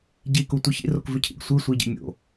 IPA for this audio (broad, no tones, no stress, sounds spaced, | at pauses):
ɟ i k u tʷ ɨ ç ḭ r o k v ʉ cʰ ḭ ɡ sʷ ɨ sʷ i ɟ ḭ mʲ o̰